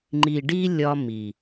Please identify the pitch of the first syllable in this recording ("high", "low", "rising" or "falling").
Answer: low